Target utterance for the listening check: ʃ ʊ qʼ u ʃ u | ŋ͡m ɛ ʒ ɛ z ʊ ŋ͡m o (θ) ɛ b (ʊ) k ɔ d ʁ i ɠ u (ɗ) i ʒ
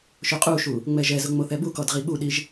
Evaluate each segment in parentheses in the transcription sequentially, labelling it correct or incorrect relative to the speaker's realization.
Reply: correct, incorrect, correct

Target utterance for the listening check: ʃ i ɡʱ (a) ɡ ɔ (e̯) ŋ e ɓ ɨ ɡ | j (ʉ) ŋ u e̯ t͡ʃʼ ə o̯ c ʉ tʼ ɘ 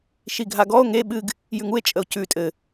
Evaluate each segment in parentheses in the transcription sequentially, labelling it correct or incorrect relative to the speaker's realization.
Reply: correct, incorrect, correct

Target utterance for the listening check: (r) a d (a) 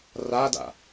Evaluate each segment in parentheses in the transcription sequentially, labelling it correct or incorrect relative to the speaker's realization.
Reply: correct, incorrect

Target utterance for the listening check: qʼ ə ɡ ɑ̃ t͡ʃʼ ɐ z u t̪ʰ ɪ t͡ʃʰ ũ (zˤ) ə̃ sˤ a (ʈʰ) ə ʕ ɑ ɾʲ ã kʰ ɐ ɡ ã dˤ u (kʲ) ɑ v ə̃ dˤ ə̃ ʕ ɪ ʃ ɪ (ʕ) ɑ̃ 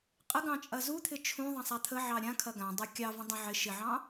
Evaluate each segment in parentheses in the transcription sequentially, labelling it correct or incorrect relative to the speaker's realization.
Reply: incorrect, incorrect, correct, correct

